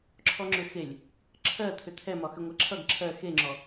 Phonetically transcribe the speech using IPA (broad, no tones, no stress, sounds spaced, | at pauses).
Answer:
ǁʰ ɔ ŋ͡ǁ ʏ x e lʲ | ǁʰ ɜ t̪ʰ ʏ t̪ʰ ɛ m ɒ x ʏ ŋʷ ɜ ǁʰ ʌ ɡ ǁʰ ɜ x e ŋ͡ǁ ɔ